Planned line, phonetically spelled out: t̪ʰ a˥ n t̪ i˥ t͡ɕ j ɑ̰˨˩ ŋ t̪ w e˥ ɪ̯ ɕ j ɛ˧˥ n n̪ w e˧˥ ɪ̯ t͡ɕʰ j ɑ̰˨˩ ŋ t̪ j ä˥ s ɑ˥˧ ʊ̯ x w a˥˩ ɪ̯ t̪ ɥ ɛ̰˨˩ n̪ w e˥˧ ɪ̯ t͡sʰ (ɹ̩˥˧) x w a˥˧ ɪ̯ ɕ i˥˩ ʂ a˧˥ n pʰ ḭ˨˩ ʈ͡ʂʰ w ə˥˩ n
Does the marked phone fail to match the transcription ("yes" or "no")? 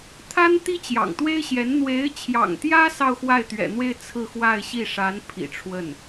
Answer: no